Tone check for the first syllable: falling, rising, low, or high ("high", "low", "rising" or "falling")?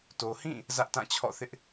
low